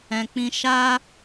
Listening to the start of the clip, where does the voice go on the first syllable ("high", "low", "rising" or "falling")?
low